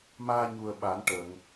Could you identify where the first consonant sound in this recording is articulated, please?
labial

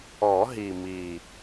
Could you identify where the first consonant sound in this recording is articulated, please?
glottal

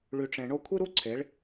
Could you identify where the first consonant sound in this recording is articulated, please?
retroflex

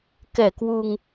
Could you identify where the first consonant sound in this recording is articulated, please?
velar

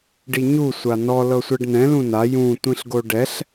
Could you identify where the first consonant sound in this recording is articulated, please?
retroflex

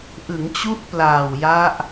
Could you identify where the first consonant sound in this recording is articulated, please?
glottal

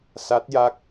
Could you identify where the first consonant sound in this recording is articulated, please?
alveolar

